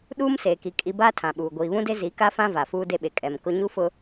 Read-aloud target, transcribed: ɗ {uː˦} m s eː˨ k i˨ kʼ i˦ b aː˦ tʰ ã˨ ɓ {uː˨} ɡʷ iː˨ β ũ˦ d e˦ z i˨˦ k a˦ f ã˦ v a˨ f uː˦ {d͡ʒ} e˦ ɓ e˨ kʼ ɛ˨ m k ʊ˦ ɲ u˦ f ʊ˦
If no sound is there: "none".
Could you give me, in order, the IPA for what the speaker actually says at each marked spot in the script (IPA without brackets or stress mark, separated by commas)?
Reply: uː˦, uː˨, d